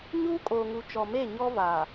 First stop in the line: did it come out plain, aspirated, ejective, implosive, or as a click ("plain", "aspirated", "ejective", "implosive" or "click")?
ejective